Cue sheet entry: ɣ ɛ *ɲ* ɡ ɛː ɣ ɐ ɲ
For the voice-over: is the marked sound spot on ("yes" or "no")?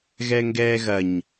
no